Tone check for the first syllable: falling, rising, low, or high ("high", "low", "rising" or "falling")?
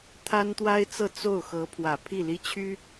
high